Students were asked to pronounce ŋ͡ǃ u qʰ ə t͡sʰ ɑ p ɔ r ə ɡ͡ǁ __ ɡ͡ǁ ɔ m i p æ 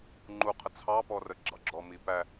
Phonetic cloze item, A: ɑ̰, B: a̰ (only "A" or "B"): A